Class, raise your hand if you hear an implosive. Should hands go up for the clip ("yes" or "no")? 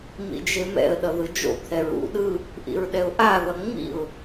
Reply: yes